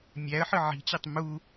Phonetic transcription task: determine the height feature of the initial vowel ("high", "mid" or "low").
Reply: low